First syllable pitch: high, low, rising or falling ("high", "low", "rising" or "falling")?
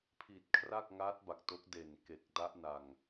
low